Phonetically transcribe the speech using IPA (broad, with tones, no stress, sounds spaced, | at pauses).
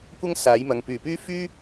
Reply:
kʷ ɐ˥ ŋ s aː˨˥ j m ɐ˨˧ ŋ p yː˨ p yː˥ f yː˥